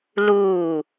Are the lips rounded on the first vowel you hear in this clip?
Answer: yes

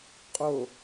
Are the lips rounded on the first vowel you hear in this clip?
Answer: yes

